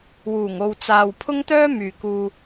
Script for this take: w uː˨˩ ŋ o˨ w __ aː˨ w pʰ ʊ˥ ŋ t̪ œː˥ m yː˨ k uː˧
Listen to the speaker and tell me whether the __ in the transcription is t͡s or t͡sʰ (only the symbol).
t͡s